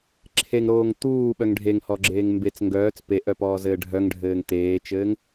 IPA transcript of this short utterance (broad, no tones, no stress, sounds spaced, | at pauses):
ǁʰ e ŋ ɾ oː ŋ t̪ uː ɓ œ ŋ ɖʱ e ŋ h ɔ ɡ͡ǁ eː ŋ m b e t͡s ŋ ɡ œː t͡s p e ʔ œ p ɔː z ɘː ɖʱ œ ŋ ɖʱ ɘː ŋ t̪ eː t͡ʃ ɘː ŋ